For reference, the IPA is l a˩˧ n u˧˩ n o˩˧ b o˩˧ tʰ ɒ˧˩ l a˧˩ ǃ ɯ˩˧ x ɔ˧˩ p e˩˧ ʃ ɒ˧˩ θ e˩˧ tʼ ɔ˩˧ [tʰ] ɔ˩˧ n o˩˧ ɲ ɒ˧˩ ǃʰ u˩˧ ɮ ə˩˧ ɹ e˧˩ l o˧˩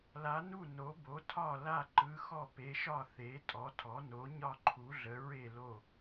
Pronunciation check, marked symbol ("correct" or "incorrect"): correct